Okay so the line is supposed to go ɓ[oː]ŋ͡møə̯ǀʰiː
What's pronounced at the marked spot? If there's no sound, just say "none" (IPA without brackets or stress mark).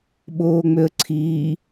oː